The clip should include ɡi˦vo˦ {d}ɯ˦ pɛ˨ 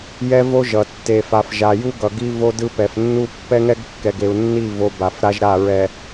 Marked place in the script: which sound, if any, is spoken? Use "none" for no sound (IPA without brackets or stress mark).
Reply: d